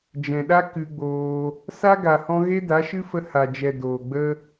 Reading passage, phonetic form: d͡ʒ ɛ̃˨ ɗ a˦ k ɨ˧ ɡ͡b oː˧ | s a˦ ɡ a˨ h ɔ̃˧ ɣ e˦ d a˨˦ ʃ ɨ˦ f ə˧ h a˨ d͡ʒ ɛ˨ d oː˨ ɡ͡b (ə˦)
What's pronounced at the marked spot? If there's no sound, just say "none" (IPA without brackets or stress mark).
ə˦